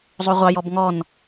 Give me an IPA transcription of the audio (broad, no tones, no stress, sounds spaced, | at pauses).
zˤ o ʁʷ ɑ j ɔ b ŋ ɔ n